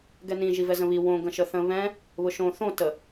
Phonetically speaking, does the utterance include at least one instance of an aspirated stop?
no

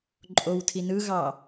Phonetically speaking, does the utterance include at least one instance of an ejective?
yes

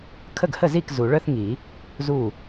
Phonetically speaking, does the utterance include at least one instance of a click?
no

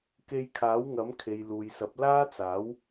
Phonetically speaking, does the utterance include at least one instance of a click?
no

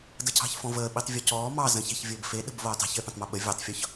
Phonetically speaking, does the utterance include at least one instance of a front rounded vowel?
no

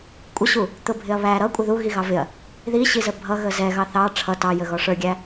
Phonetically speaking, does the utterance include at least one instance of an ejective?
yes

